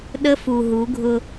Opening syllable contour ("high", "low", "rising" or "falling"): high